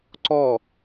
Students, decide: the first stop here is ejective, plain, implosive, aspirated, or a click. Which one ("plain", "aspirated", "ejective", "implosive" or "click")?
click